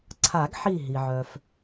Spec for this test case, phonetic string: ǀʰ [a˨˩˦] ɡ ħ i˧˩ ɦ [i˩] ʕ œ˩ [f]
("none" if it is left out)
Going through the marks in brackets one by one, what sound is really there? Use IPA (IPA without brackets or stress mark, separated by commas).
a˨˩˦, i˩, f